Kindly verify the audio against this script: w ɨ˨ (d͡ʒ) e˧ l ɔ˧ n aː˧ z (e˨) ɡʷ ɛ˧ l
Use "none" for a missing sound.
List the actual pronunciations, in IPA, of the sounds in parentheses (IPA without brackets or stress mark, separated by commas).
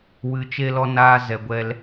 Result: t͡ʃ, ɛ˨